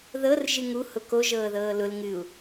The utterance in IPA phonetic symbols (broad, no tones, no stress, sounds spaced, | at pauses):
ð ɤ r ʒ ɨ ŋ u h ʊ k o ʒ ɤː ð ɤː l ʊ l ŋ ɨ u̯